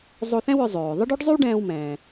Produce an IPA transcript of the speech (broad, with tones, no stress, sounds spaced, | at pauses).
zˤ o˧ θ ɛ̃˥ w œ˧ zˤ øː˩ ðˤ ə˥ ɖ ø˥ ɖ zˤ y˥ w ɖ ɛ̃ː˧ w m ɛ̃ː˩